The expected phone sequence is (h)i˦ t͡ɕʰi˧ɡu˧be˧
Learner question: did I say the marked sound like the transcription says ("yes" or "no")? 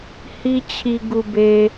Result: yes